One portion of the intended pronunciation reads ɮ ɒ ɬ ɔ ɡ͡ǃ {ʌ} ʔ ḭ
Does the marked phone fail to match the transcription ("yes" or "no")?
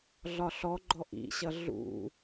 yes